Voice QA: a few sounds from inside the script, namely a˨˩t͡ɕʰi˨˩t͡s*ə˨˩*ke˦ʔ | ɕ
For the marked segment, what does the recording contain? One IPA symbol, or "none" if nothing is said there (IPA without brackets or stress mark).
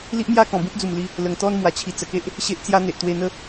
ə˨˩